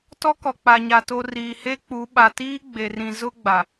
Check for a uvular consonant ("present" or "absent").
absent